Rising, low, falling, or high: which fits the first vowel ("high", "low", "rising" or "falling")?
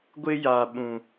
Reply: high